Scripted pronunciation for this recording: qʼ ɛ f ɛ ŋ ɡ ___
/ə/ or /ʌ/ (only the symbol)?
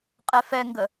ə